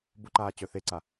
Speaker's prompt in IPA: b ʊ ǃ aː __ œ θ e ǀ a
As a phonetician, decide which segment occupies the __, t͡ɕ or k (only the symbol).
t͡ɕ